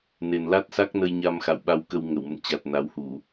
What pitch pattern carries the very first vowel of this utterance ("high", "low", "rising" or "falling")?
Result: low